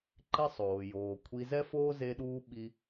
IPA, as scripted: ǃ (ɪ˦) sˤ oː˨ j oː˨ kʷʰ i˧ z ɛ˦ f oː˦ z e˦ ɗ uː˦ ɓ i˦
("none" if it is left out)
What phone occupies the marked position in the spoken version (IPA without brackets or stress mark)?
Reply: ɪ˦